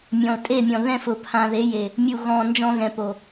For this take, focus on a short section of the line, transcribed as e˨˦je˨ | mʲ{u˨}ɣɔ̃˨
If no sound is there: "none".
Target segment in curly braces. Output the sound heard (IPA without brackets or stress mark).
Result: u˨